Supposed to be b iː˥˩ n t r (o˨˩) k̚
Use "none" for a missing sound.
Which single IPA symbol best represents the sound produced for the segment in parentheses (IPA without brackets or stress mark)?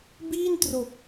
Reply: o˨˩